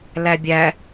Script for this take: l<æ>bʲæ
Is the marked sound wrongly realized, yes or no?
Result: no